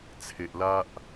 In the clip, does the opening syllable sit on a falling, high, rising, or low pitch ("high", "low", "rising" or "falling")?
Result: low